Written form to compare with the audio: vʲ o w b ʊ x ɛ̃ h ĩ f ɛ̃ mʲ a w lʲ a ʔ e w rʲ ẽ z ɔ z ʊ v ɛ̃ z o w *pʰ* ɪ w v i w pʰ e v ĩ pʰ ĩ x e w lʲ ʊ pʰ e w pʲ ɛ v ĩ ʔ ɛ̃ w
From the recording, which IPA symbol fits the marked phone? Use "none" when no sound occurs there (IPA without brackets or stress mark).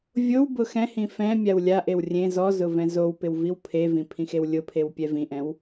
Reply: p